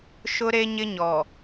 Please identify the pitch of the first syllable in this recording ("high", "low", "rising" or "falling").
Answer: high